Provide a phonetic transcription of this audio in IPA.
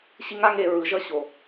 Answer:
ɕ i˥ ŋ a˥ ŋ e˧ ɹ ɯ˩˥ ʒ ʌ˥˩ ɕ o˩

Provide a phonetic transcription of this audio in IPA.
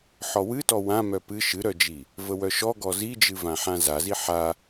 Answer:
ħ ɔ w ɨ t ɔ w ã m œ p ɨ ʃ ɨ ɾ œ d͡ʒ i | v ə w œ ʃ ɔ ɡ ɔ z i d͡ʒ ɨ v ã ħ ã z a z i ħ a

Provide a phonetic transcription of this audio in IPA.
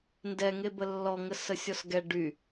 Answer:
n d ɛ ŋ e b ə lː ɔ ŋ ə s ə sʲ ɔ s ɡ ɛ ɖ y

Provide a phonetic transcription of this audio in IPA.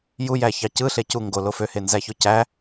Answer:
j u j æ ç ɑ c ɯ ɬ e c u ŋ ɡ o l o f ø h e n z æ ç o c æ

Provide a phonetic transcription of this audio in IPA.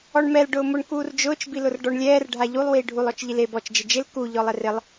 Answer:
ɔ ɳ m ɛ l ɖ ʊː m ʊ ɳ k uː r d͡ʒ ʊː t͡ʃ b i l ʊ r ɖ ɔ ɳ lʲ ɛː r ɖʱ a ʎ u lˠ w iː ɖʱ u lˠ ɔ t͡ʃ ʎ i l e b ɔ t͡ʃ d͡ʒ ɪ d͡ʒ ɪ l k u ʎ ɔ lˠ ɛ r ɪ lˠ

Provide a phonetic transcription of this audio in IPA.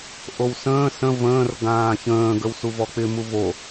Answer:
ʔ o w s ə̃ː s ə̃ v ə̃ː r ɡ ãː ç ə̃ː ɡ ə w s u v ɔ k͡p ɪ m u v o

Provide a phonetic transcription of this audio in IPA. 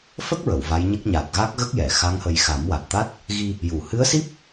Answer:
f ə˦˥ k̚ ɹ ə˨˩˨ w v a˧˥ j ɲ ə˦˥ k̚ ɲ a˨˩ t̚ ɣ a˦˥ k̚ ɣ ə˦˥ k̚ j ɛ˨˩˨ x a˧˥ ŋ h ə˧ j x a˨˩˦ m w a˨˩ t̚ t̪ a˦˥ t̚ | ɣ i˧ | j u˨˩˨ h ɨ˧˥ ə̯ s i˦˥ p̚

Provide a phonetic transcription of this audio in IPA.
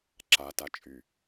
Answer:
ǁ a t a t͡ʃʼ y

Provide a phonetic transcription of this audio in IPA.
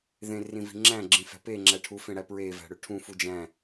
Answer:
ð ẽ r ĩ v i̤ ŋ͡ǁ æ̃ ɡ͡ǁ ĩ f æ̤ p e ŋ͡ǁ æ ʈʰ u f ẽ ɽ æ p ɹ e v æ̤ ɽ ø ʈʰ ũ f u d͡ʒ æ̃

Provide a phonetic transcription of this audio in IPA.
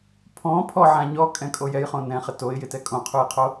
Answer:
pʰ ɔ̃ pʰ ɔ ʕ ã ɲ ɔ kʼ ɛ̃ kʼ o j ɛ j χ õ n ɛ̃ χ ɪ t o ɪ̯ j ɪ t ɛ kʼ õ qʰ u j qʰ o

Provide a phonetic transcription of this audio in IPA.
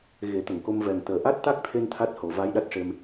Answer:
ɣ e˨˩˦ t̪ ə˨˩˨ ŋ k o˧ m v ɛ˨˩ ŋ t̪ əː˨˩ ʔ a˦˥ t̚ t̪ a˦˥ k̚ t̪ʰ e˧ n t̪ʰ a˦˥ t̚ h o˨˩˨ v aː˧˥ j ɗ a˦˥ t̚ ʂ e˧ m

